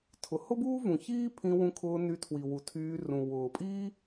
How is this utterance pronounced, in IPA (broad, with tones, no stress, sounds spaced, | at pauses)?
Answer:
tʰ ʊ˩ h ʊ˥ b uː˥ v ũ˩ ç iː˦ pʰ ĩ˨ w ũ˨ kʰ ʊː˨ n y˨ tʰ w i˩ w u˩ tʰ yː˨ r ũ˩ w ʊː˩ pʼ iː˥